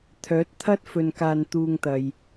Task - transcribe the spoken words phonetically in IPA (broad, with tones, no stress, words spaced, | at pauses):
t̪ʰœː˨˥t̚t̪ʰɐ˥t̚ fɵ˧nkaː˧nt̪uː˧ŋt̪ɐ˨j